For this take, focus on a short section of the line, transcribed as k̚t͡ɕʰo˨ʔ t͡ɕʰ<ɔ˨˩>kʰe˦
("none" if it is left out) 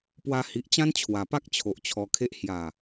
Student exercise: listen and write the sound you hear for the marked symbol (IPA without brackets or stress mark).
ɔ˧